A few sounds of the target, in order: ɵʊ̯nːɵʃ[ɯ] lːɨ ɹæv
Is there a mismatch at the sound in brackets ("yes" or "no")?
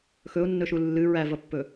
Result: yes